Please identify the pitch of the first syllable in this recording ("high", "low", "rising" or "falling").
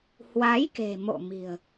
rising